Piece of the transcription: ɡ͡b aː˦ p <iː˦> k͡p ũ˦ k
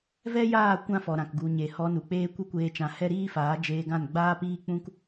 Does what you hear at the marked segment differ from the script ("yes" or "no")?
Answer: no